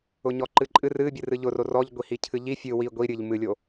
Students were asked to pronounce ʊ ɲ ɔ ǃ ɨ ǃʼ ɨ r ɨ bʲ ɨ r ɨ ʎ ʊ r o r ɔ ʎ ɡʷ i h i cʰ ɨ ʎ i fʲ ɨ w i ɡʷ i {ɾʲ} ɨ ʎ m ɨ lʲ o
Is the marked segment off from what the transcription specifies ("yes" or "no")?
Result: no